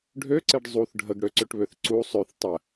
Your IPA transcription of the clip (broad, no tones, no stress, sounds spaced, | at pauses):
ɖʱ ø ǀ e ɖ zˤ u θ ɖʱ ə ɡ ɽ ø ǀ ø ʈ β ø θ ǀ u sˤ ø θ tˤ ə